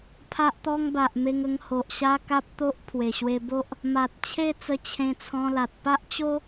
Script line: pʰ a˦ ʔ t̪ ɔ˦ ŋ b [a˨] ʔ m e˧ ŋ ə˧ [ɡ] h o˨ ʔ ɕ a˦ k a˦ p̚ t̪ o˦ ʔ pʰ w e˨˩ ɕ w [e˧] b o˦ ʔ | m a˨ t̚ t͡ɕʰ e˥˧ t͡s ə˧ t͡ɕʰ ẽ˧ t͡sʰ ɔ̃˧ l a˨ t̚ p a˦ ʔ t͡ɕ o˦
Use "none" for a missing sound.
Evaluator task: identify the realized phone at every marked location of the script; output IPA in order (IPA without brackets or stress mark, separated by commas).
a˨, ŋ, e˧